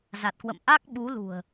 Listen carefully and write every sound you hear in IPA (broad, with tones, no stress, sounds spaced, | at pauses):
z a˨˩ t̚ k w ə̰˧˨ m ʔ a˦˥ k̚ ɓ u˨˦ l ṳ˨˩ ə̯